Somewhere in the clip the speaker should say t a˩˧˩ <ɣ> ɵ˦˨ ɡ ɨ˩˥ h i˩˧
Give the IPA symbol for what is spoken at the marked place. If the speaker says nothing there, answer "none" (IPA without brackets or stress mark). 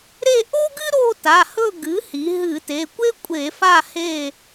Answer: h